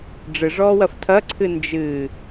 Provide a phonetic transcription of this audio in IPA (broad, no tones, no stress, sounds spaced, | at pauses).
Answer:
ɖ͡ʐ ɨ ʐ ɔː w ɐ f tʰ ɐ ǀʰ ɨ n d͡ʒ ɨ